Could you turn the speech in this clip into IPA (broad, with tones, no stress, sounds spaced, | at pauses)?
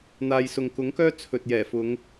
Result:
n̪ aː˨ j s ʊ˨ ŋ k ʊ˨˥ ŋ k œː˥ t͡sʰ ɵ˨ t̚ j ɛː˨˩ f ʊ˨˧ ŋ